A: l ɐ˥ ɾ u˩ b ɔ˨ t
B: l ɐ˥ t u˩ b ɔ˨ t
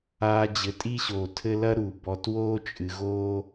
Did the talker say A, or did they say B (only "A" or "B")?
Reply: A